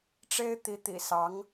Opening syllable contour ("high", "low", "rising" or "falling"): high